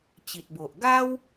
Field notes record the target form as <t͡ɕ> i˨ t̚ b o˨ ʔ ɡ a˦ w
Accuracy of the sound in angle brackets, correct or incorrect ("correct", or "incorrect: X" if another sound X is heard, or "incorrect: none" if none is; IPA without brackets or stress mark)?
correct